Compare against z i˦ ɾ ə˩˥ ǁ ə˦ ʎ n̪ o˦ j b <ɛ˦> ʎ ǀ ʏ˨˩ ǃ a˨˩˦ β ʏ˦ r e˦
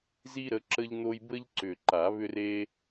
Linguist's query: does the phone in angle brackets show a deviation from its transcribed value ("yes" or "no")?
yes